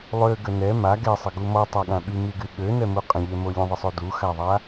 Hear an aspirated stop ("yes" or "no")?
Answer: no